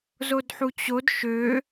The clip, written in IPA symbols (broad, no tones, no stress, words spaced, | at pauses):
zodħut͡ɕod ʃø